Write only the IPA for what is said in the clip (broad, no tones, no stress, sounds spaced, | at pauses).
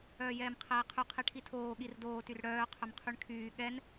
œː j ɛː m qʰ ɛː qʰ y qʰ e ʈʰ i tʰ oː ɠ i r d oː t y r ɽ œː qʰ œ m qʰ y ɳ kʰ yː ɠ ɛ n